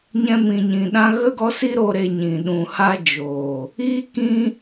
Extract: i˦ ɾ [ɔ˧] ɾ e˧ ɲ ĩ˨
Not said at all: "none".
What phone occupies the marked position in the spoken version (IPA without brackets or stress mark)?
o˧